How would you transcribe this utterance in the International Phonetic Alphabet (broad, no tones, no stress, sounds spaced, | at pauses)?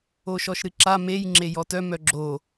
o ʃ ɔ ʃ ɾ ɨ ǁ a m e j ŋ͡ǁ e j ɔ t œ m œ ɡ͡ǁ o